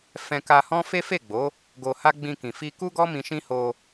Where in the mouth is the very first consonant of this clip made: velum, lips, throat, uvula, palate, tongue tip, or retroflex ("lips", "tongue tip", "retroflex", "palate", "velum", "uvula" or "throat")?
lips